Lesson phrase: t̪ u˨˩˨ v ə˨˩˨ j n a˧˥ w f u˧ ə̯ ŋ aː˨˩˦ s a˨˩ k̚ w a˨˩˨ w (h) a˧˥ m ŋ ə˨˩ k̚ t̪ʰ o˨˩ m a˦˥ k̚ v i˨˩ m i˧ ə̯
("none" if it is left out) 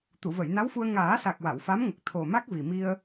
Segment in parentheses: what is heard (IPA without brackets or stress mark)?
f